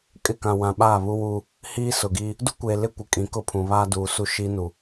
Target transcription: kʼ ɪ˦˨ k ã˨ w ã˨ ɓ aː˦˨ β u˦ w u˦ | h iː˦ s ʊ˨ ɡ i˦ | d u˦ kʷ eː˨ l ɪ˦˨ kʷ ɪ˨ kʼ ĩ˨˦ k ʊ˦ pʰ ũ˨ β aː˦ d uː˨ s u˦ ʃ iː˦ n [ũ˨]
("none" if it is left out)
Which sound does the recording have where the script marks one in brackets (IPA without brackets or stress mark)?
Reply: u˨